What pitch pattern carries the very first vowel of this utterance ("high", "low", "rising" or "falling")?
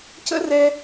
high